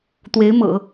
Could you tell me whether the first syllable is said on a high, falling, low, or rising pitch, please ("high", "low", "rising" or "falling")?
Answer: rising